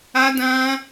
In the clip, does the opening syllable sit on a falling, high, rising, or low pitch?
high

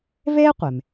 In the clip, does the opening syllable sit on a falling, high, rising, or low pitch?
high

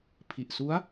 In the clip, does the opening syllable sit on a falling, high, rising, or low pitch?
low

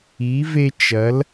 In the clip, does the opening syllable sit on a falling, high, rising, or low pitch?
rising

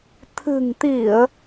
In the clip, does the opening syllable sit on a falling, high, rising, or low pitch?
low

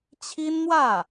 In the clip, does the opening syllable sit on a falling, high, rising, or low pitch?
high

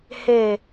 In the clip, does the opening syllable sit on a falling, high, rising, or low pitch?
falling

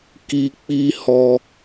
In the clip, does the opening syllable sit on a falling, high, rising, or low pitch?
high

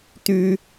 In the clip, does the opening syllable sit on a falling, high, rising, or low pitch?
high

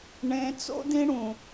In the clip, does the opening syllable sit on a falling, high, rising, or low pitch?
high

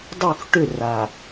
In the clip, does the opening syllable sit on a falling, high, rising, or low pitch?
falling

